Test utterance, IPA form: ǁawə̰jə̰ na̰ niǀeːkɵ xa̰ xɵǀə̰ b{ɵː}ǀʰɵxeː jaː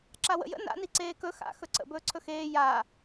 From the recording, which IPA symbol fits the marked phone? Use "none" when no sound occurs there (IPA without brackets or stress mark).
ɵː